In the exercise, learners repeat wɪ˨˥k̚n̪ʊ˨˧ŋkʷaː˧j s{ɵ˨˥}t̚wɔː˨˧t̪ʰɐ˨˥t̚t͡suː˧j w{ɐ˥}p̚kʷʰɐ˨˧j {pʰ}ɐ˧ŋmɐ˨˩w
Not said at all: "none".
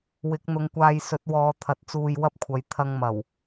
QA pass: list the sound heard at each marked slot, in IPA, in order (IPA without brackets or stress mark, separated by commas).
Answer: ɵ˨˥, ɐ˥, t̪ʰ